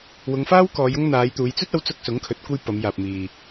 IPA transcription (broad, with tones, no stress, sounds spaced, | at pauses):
w ʊ˨˧ ŋ f aː˥ w k ɔː˨˧ j ʊ˥ ŋ n̪ aː˨˧ j t̪ uː˨˧ j t͡s ɵ˥ t̚ ɐ˨˧ w t͡s ʊ˧ k̚ s ʊ˨˥ ŋ kʰ ɵ˨˥ t̚ kʷ ɐ˥ j p ɐ˨˧ m j aː˨ p̚ m iː˨